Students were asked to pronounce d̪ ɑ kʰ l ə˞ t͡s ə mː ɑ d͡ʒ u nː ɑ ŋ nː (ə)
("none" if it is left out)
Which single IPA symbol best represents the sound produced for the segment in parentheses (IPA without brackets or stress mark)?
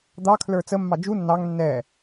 ɛ